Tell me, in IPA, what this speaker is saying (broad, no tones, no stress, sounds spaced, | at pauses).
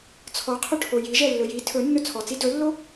t͡sʰ ɔ qʰ ɵ ʈʰ o j i ʒ ɛ lː ɵ j i tʰ ɵ nː ɵ t͡sʰ ɔ t͡s i d ɵ lː o